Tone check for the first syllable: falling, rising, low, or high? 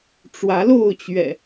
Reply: rising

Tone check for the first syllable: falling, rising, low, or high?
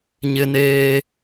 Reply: high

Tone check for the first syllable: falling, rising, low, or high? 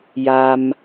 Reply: low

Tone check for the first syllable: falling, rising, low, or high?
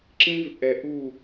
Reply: high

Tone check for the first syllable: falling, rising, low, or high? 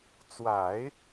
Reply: low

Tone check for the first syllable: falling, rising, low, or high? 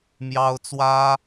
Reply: high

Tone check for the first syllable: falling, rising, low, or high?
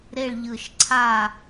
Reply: falling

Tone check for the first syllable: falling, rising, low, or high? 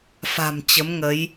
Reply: low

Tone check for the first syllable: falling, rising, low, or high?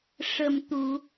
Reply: low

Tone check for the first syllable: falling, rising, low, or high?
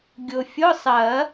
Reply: low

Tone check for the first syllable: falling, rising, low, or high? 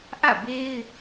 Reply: falling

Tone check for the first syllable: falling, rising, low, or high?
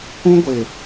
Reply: high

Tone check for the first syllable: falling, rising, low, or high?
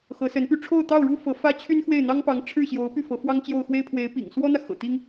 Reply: rising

